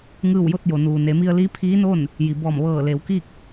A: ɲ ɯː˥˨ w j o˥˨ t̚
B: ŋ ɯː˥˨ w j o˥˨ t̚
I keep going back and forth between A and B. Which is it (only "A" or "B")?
B